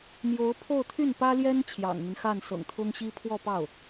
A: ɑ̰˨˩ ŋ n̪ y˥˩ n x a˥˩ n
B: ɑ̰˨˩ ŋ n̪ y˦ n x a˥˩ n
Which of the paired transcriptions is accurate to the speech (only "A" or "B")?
B